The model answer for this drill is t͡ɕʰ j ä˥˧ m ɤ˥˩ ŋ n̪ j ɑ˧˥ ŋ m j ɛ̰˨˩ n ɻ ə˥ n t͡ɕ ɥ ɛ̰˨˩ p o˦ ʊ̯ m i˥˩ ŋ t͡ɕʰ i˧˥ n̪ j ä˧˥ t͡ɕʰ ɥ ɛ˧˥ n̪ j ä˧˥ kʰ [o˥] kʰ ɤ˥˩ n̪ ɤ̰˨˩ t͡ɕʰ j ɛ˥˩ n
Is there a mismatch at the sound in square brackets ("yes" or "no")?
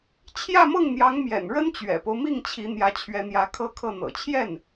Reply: yes